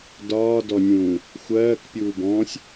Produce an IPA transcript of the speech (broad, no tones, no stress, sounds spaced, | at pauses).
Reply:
d ɒː d ɔ nʲ ũː | xʷ ɜː k pʲ uː b ɔ̃ː sʲ